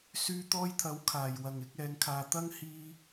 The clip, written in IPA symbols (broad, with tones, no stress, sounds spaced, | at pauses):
s yː˧ t̪ ɔː˧ j t̪ʰ ɐ˨˥ w kʰ aː˨ j w ɐ˨ ŋ ɪ˨˥ k̚ ɛː˨˧ ŋ kʰ aː˨ t̪ ɐ˥ ŋ h iː˧